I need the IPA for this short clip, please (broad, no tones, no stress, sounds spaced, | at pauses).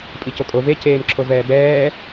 pʼ i c o kʼ o v e c eː m ǁʰ o v ɛː b ɛː